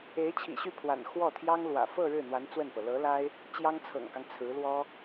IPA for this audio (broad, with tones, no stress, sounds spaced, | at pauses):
e˧˥ ɪ̯ t͡ɕʰ ḭ˨˩ ɕ y˥˩ pʰ w a̰˨˩ n x w ɔ˥˩ t̪ʰ j ɑ˥ ŋ l w ä̰˨˩ f ɤ˥˧ ɻ ɻ̩˥˩ n̪ w a˧˥ n t͡s w ə˥˩ n p ɤ˩ l ɤ˧˥ l a˥ ɪ̯ | t͡ɕ j ɑ˥ ŋ t͡sʰ ɤ̰˨˩ ŋ k ɑ˦ ŋ t͡sʰ ɹ̩˧˥ l w ɔ˥